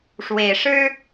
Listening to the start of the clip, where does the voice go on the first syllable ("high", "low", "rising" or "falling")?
rising